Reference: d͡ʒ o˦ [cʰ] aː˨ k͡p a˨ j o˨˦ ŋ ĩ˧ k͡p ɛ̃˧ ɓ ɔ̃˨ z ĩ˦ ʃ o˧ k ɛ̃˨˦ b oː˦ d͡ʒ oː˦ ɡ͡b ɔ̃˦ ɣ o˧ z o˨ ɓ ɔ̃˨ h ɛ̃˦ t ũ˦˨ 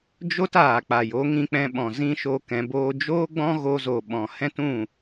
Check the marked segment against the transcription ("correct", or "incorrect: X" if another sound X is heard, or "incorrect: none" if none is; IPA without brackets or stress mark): incorrect: t